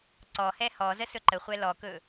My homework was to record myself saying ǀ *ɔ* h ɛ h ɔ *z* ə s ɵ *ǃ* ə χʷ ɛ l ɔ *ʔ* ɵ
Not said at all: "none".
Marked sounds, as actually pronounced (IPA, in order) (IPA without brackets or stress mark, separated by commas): ɔ, z, ǃ, k